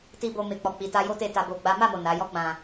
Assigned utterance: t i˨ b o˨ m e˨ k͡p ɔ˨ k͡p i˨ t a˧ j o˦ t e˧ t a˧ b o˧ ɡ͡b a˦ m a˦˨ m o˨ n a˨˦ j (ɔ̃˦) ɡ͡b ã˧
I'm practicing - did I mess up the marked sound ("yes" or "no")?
yes